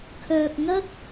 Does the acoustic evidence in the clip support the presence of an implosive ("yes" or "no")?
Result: no